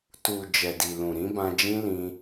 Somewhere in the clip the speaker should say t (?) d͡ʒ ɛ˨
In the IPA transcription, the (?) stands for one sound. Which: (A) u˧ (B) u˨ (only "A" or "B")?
B